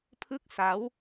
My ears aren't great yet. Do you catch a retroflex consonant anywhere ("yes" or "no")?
no